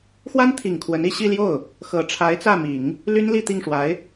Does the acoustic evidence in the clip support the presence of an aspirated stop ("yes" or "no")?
yes